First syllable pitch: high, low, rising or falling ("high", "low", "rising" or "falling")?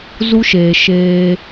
high